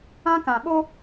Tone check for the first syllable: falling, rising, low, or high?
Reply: high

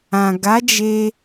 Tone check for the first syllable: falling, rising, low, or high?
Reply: low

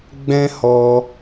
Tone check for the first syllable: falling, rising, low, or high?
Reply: high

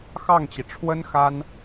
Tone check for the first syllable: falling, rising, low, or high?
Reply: falling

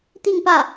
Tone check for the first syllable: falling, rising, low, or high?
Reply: falling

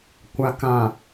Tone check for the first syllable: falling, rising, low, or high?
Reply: low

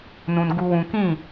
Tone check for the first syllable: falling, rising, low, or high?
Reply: low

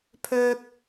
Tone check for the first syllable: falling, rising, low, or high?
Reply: high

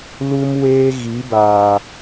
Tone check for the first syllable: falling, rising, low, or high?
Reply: high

